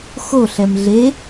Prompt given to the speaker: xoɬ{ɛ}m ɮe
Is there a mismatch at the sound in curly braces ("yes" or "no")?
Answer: no